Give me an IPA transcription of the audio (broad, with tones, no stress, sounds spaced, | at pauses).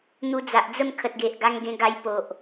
n̪ u˧ d͡z a˨ ʔ d͡z ə˥˧ m kʰ ə˨ t̚ ɡ e˨ ʔ ɡ a˧ ŋ ɡ ẽ˧ ɡ a˧ j p o˨ ʔ